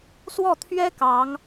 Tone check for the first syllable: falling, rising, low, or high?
falling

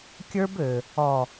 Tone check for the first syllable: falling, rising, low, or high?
high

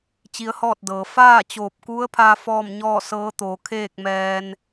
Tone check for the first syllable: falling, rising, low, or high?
rising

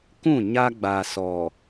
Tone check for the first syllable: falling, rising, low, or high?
falling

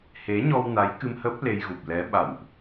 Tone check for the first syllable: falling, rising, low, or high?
rising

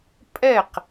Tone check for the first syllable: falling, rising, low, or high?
falling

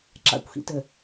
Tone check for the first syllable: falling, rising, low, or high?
low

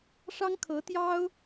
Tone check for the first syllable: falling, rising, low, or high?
high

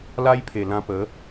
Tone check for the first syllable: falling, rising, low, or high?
high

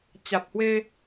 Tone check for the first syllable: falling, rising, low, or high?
low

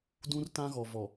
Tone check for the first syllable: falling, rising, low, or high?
high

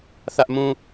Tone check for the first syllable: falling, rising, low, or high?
high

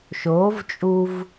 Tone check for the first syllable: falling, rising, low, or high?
rising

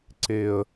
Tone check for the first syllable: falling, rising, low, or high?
high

